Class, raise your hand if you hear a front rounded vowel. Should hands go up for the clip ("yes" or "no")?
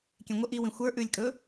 no